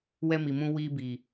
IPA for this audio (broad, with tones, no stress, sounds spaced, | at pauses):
w ɛ˦ m i˨ m ũ˦ w iː˦ b i˨